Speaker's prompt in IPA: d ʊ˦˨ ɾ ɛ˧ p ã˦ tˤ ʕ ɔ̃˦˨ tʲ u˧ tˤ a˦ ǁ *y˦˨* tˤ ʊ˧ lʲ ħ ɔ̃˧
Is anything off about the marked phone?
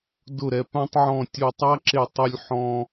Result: yes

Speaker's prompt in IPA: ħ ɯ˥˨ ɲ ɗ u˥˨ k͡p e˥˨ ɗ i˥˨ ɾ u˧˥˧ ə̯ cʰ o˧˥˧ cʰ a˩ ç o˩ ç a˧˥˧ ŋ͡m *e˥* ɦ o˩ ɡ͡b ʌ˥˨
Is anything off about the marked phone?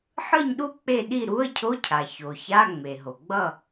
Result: yes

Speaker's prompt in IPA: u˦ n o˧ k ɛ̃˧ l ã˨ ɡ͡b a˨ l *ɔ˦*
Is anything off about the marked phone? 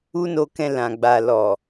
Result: yes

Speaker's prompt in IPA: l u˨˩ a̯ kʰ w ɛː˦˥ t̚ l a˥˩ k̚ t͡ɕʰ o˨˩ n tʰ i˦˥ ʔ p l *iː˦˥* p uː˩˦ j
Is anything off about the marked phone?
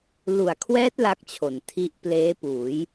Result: yes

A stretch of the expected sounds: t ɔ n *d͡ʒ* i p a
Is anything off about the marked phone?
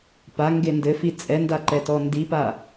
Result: yes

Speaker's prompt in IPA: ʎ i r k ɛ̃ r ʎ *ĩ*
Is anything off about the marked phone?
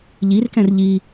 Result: yes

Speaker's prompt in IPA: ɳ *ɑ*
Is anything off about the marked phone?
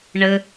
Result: yes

